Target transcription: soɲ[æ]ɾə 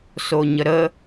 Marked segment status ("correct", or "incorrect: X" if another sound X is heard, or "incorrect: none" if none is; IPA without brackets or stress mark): incorrect: ə